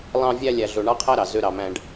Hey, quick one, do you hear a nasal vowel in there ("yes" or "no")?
yes